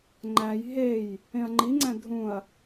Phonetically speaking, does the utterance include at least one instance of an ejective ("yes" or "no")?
no